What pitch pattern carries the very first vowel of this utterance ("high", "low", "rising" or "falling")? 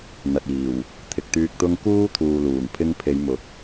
low